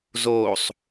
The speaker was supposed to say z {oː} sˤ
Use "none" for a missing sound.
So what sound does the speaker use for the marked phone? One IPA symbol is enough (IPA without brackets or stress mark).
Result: oː